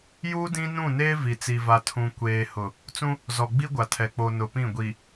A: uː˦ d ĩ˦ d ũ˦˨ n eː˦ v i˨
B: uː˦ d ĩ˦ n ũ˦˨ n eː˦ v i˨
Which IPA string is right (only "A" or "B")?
B